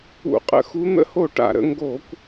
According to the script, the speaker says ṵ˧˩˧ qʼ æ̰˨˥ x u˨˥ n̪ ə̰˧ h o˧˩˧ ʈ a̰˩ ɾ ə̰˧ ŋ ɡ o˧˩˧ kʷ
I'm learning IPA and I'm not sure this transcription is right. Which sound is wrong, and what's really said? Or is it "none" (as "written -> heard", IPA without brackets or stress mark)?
æ̰˨˥ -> ə̰˨˥